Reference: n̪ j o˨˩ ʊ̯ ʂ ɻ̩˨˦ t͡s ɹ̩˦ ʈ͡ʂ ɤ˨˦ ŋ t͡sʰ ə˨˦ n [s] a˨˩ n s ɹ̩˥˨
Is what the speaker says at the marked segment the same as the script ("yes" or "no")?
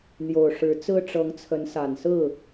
yes